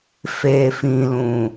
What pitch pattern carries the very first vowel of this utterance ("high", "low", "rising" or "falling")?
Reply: low